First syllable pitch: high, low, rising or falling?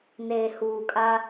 low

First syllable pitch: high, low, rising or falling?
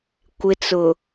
low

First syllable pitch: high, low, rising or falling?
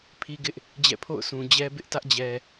high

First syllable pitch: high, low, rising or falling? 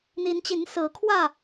rising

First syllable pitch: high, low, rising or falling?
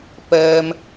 high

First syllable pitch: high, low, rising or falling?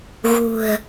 low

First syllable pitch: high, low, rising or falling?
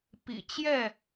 low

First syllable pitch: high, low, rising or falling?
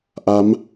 rising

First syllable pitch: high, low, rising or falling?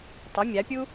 rising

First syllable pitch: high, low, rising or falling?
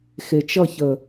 low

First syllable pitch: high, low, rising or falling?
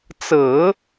low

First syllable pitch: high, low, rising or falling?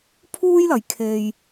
high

